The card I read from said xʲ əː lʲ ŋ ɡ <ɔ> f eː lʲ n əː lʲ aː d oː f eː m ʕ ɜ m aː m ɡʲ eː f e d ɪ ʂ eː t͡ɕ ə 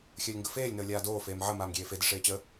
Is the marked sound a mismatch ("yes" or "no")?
yes